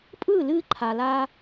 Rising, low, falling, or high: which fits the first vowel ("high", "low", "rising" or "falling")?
falling